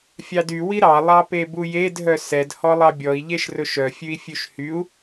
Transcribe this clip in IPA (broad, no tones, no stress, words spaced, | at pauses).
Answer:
fʲɑdy wiɾɑ lˠɑpebujed ɦœsɛd hɔlˠɑbʲɔi̯ ʎeʃrɵʃœ fʲʉi̯fʲʉʃhyu̯